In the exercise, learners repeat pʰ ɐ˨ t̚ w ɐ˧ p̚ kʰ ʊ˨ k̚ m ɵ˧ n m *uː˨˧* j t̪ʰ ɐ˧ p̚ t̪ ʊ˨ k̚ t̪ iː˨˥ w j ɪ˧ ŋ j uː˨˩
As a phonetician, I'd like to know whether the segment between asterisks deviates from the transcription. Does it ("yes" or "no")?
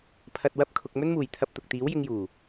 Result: yes